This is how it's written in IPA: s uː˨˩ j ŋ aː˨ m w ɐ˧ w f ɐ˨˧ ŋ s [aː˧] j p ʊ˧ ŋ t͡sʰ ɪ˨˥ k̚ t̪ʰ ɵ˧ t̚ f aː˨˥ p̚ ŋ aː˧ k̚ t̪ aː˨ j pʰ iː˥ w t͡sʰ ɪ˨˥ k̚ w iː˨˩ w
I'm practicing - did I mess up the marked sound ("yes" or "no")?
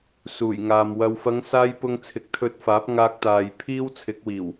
no